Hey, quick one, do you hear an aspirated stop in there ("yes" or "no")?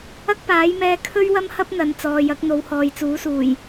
yes